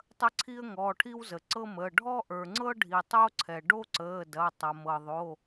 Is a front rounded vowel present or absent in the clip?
absent